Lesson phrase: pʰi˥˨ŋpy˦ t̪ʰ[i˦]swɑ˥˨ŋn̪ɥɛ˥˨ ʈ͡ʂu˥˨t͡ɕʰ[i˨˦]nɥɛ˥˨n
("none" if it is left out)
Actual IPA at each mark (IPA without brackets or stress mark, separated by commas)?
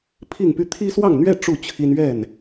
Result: i˦, i˦